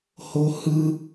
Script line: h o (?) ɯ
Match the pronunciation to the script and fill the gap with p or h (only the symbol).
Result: h